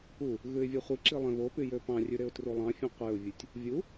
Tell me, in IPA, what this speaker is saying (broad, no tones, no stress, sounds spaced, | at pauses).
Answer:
u | ɣ ʉ ɪ̯ vʲ ɛ χʷ i ǁ i lˠ ẽ β o p y j ø p ɑ̃ rʲ ʉ ɾ e ʊ̯ t r u lˠ ɑ̃ fʲ ẽ qʷ e ʊ̯ vʲ ʉ tʲ | vʲ u